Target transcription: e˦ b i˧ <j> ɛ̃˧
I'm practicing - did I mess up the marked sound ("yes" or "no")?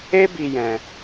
no